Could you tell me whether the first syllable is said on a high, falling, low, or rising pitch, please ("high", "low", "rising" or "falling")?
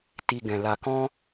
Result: low